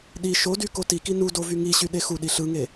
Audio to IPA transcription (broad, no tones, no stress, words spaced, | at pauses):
ɗi ʃody kotiki nu dovyŋiɕy ɗexuɗi ɬɯŋe